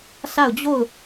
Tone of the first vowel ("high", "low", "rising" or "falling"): falling